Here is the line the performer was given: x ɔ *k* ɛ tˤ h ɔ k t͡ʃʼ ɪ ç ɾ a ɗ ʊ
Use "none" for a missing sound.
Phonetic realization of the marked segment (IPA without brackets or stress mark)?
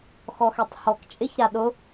x